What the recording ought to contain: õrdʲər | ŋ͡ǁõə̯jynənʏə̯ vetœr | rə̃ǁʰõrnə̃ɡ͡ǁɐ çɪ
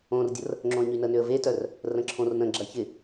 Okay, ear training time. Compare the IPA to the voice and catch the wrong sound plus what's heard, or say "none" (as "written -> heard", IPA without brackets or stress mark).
j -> ɲ